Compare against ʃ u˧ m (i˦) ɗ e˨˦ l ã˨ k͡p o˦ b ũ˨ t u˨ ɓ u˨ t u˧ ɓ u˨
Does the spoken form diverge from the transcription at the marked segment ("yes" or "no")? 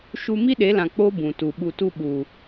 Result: no